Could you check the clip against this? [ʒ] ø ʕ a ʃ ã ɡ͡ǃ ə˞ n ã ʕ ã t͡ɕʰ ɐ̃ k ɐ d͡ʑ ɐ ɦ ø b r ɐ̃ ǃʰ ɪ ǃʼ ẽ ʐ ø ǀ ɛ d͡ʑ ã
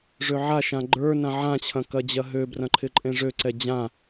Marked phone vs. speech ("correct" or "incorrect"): incorrect